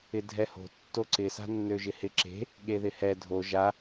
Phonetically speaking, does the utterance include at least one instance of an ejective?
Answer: no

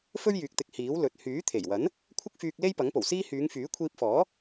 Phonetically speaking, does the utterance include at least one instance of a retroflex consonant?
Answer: no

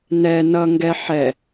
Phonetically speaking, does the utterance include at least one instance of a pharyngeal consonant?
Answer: yes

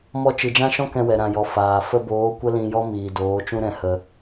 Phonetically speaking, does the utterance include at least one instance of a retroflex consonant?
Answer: no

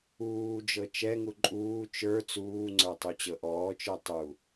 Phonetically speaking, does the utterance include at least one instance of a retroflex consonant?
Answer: no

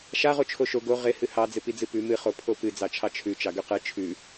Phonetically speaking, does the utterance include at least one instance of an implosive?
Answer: no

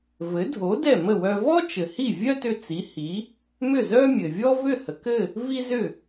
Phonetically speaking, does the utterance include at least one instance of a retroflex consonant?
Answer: no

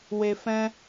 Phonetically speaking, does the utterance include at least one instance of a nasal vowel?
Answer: yes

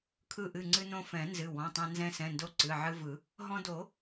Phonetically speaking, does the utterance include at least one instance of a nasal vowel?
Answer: yes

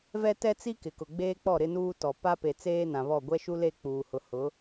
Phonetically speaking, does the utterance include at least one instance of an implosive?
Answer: no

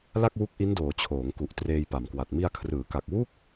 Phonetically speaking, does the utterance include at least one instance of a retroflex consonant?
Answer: no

